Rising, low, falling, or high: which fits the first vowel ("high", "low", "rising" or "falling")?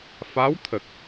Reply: rising